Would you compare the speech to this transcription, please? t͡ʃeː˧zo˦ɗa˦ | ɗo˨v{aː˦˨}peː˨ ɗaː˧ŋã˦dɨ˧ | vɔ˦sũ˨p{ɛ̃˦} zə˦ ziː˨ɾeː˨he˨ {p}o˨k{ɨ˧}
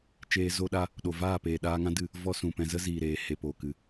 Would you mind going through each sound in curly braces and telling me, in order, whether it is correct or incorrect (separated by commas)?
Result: correct, incorrect, correct, incorrect